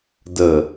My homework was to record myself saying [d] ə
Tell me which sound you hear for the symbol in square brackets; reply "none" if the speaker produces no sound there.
d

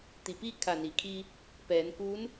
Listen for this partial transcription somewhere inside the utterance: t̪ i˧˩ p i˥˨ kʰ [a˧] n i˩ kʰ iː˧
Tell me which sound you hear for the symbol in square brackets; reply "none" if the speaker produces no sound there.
a˧˩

